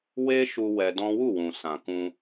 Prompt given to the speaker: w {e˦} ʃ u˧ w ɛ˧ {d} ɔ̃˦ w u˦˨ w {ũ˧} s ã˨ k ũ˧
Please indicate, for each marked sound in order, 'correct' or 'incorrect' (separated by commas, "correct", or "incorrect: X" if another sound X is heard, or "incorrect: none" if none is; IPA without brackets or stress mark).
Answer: correct, correct, incorrect: ũ˨